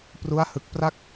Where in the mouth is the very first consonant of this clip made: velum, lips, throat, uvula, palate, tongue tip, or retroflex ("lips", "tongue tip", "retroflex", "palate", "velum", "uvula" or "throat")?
lips